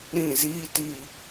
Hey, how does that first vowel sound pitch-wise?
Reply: falling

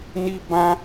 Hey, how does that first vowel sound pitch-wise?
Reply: high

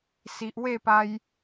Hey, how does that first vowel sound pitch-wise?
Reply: low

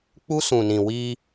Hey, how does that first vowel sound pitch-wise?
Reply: high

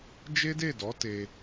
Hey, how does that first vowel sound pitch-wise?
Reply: high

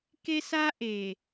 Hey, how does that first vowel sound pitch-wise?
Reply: high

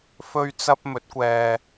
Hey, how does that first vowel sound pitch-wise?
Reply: high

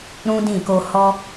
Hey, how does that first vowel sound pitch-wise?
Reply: high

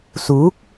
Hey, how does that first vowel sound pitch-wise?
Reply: rising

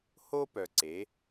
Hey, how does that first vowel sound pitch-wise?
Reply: high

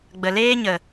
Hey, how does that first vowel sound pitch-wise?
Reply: low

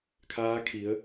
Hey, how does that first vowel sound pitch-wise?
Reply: rising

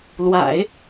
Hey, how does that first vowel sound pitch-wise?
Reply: low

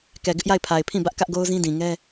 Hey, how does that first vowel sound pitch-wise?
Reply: low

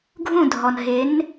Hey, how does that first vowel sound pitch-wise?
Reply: falling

